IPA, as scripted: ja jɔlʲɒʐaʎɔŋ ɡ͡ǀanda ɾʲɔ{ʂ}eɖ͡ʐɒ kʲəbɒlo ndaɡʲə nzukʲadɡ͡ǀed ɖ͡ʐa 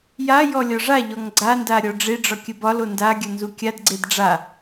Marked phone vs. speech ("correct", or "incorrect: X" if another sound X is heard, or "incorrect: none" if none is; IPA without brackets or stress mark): incorrect: ɖ͡ʐ